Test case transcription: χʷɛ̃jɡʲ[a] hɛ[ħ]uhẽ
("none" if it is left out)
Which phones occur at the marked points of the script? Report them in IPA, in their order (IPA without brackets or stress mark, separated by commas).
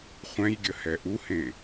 ə, ʔ